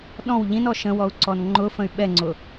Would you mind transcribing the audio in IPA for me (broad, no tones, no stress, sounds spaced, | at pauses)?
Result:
ɗ ɔ̃ w ʎ ĩ n ɔ ʃ ə̃ w ɔ u̯ ǀ ɔ n ŋ͡ǃ ʊ f ə̃ y̯ ɓ ɛ ŋ͡ǀ ʊ